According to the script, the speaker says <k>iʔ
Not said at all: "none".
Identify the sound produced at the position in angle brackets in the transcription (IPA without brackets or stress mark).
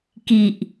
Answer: k